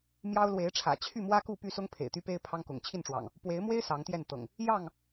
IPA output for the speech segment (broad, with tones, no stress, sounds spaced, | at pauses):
m j ɑ˦ ʊ̯ l w e˨˦ ɪ̯ ʈ͡ʂʰ ä̰˨˩ t͡ɕʰ y˥˨ m w ä˦ k u˥˨ p y˥˨ s ʊ˦ ŋ pʰ ḛ˨˩ ɪ̯ t̪ y˦ p e˦ ɪ̯ pʰ ɑ˦ ŋ k ʊ̰˨˩ ŋ t͡ɕʰ i˥˨ n ʈ͡ʂ w ɑ̰˨˩ ŋ | p w e˨˦ ɪ̯ m w e˦ ɪ̯ s ɑ˨˦ ŋ t̪ j ɛ˥˨ n t̪ ɤ̰˨˩ ŋ | j ɑ˥˨ ŋ